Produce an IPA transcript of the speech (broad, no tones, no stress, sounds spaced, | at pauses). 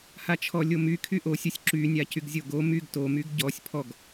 h a t͡ʃʰ ɔ lʲ o m y kʰ y ʔ o sʲ o sʲ ǁ y nʲ a c y ɡ zʲ o ɡ o m y ɡ t o m y ɡ ɟ ɔ sʲ pʰ ɔ ɡ